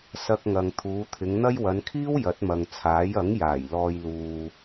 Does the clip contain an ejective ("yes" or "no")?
no